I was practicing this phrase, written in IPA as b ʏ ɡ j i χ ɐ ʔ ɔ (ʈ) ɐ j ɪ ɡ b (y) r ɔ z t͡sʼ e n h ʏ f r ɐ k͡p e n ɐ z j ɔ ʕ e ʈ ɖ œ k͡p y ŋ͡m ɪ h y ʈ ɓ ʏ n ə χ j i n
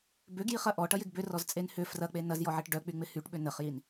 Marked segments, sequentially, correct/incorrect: correct, incorrect: ʏ

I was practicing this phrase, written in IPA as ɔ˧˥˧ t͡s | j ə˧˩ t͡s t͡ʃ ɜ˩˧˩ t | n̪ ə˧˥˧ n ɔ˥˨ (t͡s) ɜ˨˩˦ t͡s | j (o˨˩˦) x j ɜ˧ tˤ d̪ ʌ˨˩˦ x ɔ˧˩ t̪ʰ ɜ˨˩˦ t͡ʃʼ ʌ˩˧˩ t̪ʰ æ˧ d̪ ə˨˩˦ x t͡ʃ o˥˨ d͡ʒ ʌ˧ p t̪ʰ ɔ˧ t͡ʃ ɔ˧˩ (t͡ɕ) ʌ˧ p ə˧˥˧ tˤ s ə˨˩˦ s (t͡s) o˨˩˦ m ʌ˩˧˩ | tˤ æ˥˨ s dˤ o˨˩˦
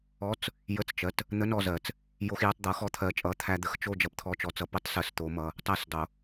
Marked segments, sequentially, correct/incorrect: incorrect: z, incorrect: o˧, incorrect: t͡s, incorrect: t̪

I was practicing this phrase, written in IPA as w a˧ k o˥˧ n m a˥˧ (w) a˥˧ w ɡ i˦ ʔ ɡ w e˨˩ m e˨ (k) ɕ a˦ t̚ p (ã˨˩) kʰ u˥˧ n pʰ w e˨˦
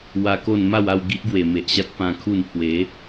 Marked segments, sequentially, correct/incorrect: correct, incorrect: ʔ, incorrect: ã˧

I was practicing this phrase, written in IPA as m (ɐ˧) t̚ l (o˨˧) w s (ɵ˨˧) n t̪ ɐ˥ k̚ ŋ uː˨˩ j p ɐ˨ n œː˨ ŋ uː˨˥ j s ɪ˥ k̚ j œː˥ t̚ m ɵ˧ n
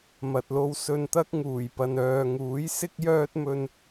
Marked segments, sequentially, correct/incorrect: incorrect: ɐ˨, incorrect: o˧, incorrect: ɵ˧

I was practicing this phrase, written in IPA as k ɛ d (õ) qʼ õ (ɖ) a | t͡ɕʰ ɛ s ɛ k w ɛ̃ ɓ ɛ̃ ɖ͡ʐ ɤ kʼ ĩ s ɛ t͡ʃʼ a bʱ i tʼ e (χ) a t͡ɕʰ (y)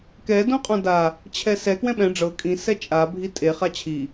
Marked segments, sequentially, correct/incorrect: correct, incorrect: d, correct, incorrect: i

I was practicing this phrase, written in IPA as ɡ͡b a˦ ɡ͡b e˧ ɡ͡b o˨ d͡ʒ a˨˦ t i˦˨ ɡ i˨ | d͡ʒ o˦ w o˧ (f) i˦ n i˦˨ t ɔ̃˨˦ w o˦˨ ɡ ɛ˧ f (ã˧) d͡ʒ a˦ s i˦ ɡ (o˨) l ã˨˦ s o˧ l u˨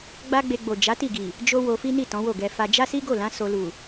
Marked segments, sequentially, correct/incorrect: correct, incorrect: a˧, incorrect: o˦˨

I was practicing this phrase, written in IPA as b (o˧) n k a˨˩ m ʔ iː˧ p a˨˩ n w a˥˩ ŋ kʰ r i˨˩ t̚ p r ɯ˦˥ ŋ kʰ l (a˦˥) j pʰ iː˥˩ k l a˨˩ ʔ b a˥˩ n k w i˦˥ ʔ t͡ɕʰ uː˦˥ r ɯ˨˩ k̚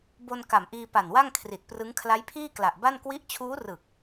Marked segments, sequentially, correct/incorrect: correct, correct

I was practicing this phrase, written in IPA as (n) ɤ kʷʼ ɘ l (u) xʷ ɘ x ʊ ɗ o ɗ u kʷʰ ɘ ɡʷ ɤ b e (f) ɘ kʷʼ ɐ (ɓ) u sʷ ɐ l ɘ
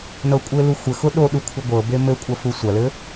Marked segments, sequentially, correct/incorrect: correct, correct, incorrect: m, incorrect: f

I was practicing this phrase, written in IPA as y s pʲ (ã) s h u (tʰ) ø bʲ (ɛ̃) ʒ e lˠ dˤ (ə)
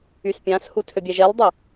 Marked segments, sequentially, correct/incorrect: correct, correct, incorrect: ɛ, correct

